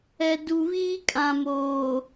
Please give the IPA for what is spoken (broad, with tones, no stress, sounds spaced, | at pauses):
ɛ˨ d u˨ β iː˦ kʼ ã˨ m oː˨